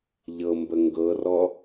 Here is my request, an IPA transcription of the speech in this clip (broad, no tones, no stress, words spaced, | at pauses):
ʎɤmbə ŋɡɤrɔ